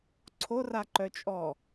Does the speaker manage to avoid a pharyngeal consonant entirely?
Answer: yes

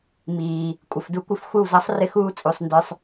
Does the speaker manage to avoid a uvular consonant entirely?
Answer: yes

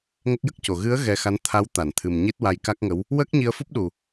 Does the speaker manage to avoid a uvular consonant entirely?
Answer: yes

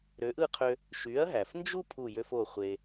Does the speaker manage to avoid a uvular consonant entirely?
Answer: no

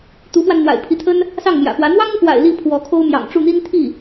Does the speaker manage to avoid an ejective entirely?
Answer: yes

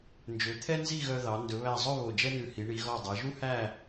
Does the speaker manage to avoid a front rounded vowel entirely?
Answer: no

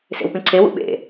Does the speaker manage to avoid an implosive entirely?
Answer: no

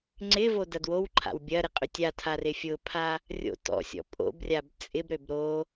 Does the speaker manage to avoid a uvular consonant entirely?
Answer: no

